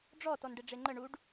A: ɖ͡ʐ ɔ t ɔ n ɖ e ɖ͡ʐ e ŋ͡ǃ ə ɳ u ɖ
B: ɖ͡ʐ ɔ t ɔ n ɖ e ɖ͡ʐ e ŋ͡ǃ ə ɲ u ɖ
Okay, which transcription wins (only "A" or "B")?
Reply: A